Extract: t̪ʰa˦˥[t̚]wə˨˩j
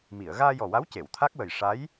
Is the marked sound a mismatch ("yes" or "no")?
yes